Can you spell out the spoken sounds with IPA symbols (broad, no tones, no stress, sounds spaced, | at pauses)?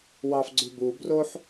w ɑ f ɡ͡ǀ ʉ b u b r o ħ